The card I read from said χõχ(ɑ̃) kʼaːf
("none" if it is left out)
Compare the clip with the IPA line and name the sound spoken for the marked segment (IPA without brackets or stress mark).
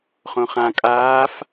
ã